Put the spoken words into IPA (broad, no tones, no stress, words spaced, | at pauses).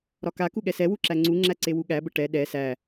ɾɒkaku ɠɛsɛwu ǁæŋ͡ǀuŋ͡ǁæ ǀewuɠæbə ʈɛ ɗɛ sæ